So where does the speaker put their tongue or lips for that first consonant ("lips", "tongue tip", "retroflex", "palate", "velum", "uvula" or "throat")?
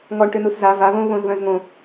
velum